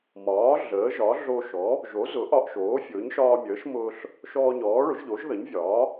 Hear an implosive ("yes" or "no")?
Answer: no